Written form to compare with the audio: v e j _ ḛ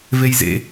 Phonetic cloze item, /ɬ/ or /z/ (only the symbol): z